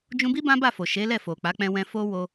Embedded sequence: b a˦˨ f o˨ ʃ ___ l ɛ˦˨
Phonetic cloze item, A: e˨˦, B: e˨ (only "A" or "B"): A